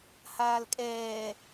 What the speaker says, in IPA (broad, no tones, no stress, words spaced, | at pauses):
haːlkʼɛː